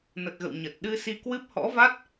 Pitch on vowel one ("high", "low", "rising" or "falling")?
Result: low